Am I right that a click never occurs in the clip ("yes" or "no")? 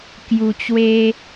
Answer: yes